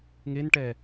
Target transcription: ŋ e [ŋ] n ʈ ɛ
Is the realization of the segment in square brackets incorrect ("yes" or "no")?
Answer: yes